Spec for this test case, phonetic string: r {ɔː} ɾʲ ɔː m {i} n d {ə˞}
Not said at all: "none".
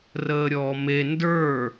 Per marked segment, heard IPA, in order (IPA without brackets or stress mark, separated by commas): əː, e, ə˞